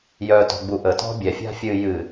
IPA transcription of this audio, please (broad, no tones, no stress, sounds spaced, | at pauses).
j œ t ɔ̤ ɡ͡b u ʔ ə t ɔ̤ bʲ ɛ fʲ a̤ fʲ ɨ j ɨ